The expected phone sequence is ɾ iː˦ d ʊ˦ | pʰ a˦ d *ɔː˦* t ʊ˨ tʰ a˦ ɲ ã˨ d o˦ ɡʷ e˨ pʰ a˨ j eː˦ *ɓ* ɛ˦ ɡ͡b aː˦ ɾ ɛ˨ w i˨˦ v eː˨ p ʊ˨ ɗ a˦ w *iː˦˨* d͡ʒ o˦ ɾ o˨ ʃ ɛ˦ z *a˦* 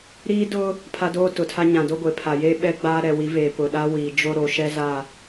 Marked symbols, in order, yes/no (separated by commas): no, yes, no, no